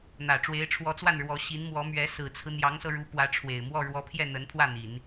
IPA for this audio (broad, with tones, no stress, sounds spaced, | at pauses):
n̪ ä˨˩ ʈ͡ʂ w e˧˥ ɪ̯ ʈ͡ʂʰ w ɔ˧˥ t͡s w a˥˩ n ɻ w ɔ˧˥ ɕ i˧˥ n m w ɔ˧˥ m ɥ ɛ˧˥ s ɹ̩˨˩ t͡sʰ ɹ̩˦ n̪ j ɑ˧˥ ŋ s ɤ˧ ɻ u˧˥ p w ä˧˥ ʈ͡ʂʰ w e˨˩ ɪ̯ m w ɔ˥˩ ɻ w ɔ˧˥ pʰ j ɛ˥˩ n̪ ə˧˥ n pʰ w ä˥˩ n̪ i˨˩˦ n